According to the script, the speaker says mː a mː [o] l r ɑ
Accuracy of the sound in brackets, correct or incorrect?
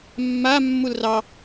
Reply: incorrect